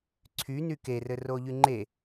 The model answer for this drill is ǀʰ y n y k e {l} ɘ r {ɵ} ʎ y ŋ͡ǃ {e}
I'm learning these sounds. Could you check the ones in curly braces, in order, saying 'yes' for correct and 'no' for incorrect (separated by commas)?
no, no, yes